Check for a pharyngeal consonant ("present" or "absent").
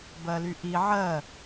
present